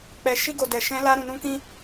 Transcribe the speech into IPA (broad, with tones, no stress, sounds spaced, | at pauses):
k͡p ɛ˧ ʃ i˦ ɡ o˧ d ɛ˧ ʃ ɛ̃˦ l a˦ ɾ ũ˧ n ũ˦ k ĩ˦